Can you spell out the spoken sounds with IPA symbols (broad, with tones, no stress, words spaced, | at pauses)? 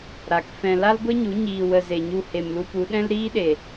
ɾa˨kfɛ̃˧ la˦lɡʷe˦ɲu˨˦ ɲiː˧wə˧ ze˨ɲu˧ he˨mlu˧pu˨˦ ɗɛ̃˦lɾiː˦ɗe˨